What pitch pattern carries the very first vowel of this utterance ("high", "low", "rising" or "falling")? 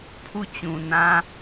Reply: falling